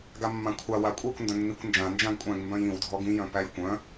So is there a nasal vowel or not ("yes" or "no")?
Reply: yes